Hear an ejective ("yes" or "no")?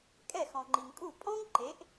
yes